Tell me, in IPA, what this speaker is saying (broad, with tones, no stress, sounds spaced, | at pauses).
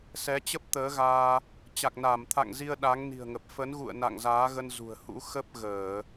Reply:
s ɛ˨˦ t͡ɕ ə˦˥ p̚ t̪ əː˨˦ ɣ aː˧ | t͡ɕ a˨˩ k̚ n aː˧˩ m t̪ʰ a̰˧˨ ŋ z i˧ ə̯ ɗ a˨˦ ŋ n i̤˨˩ ə̯ ŋ ə˨˩ p̚ f ə˨˦ n ɣ ṵ˧˨ ə̯ n a̰˧˨ ŋ z aː˨˦ ɣ ə˧ n z ṳ˨˩ ə̯ h ṵ˧˥ x ə˦˥ p̚ ɣ əː˧˩˨